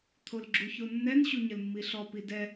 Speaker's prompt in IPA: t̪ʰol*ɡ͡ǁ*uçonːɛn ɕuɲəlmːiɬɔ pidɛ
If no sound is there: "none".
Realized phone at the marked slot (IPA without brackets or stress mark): ɡ͡ǁ